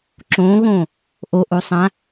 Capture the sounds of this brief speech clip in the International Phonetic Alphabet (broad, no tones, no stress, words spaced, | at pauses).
ǁõːɣõː | ʔoʔo sˤã